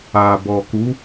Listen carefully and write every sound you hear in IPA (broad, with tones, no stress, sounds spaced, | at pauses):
a˨ b ɔ˨ k u˨˦